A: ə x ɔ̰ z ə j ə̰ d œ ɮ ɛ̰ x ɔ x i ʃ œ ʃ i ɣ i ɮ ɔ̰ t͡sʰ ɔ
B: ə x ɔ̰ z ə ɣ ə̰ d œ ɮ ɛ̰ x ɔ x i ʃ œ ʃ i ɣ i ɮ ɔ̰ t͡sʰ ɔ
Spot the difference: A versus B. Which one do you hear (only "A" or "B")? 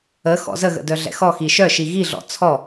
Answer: B